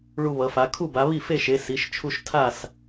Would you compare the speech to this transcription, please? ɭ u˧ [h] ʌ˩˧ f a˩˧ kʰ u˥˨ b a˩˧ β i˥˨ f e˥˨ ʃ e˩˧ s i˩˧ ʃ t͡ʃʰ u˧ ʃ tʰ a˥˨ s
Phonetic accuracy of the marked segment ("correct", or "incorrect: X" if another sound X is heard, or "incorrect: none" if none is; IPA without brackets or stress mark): incorrect: β